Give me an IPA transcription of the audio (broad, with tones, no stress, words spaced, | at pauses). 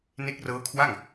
ne˦˥k̚rɤː˦˥kʰwa˥˩ŋ